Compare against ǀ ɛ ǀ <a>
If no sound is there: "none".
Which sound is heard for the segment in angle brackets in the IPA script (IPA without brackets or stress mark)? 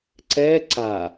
a